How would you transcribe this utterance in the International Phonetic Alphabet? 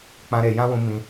k͡p ã˧ ɾ e˨ j ã˦ w ũ˧ m ĩ˧

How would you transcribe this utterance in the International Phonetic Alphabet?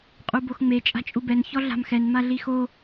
qʼ u b o x ŋ͡m e t͡ʃʼ a̤ t͡ʃʼ u b ɛ n ç ɔ ɮ a̤ m x ɛ n m a ɮ i x o

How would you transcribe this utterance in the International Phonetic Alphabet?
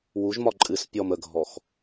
w u ʒ m ɒ ǃʼ ɨ s pʲ ɔ m ə ɡʱ ɔ x

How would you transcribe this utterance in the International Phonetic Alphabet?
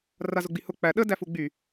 r a z ʊ ɡ͡b i h ʊ k͡p æ ɗ ə d æ f u ɡ͡b y

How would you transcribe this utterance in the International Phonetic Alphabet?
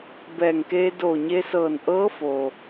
b ɛː˧˩ ŋ k eː˧ d oː˧˩ ɲ e˧ s ɤː˧˩ n ʔ ɤː˧˥ f o˩

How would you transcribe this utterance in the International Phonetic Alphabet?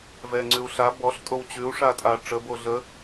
v ɛ ŋ͡ǀ ʉ u̯ ɬ a b ɔ ɬ tʼ o w t͡ɕ ʉ u̯ ʂ a tʼ a ʈ͡ʂ ə b o ɮ ə

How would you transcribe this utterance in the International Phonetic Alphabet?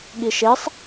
ɠ i ʃ e sˤ

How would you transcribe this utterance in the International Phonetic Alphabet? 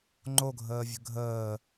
ŋ͡ǃ o ɡʱ əː vʲ ə̤ ɡʱ əː

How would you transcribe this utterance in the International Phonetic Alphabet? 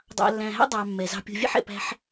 dˤ ɑ̰˨ lː æ̃˨ ɦ æ̰˥ dˤ ɑ˨ mː ɛ˩ z ɑ̤˦ pʲ o̤˦ vʲ ɛ̰˥ ħ ɛ̰˨ p æ̤˦ ħ

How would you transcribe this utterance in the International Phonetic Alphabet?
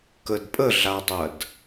k ə d pʼ ə ɮ a dˤ ɐ d

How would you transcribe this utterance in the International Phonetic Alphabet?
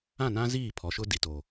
ã˦˨ n ã˦ z iː˦˨ pʰ ɔ˨ ʃ ʊ˦ d i˨ t o˨

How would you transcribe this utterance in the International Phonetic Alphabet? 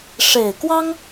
ʂ e˨˩ ɪ̯ k w ɑ˥ ŋ

